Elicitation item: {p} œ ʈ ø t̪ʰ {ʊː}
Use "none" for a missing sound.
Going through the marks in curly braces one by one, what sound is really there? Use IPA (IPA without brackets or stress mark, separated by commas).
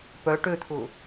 p, ʊː